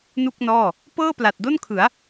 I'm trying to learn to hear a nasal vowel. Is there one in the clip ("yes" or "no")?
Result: no